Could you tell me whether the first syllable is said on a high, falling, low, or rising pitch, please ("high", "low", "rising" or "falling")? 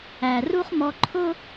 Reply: low